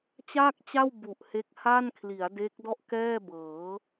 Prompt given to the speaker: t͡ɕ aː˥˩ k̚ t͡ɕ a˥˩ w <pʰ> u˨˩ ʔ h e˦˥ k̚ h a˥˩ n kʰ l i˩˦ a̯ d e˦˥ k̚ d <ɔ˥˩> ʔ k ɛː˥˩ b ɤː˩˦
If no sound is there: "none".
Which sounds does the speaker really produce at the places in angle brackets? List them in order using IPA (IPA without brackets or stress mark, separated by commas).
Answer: b, ɔ˥˩